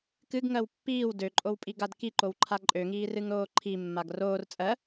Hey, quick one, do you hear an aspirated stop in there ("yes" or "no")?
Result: yes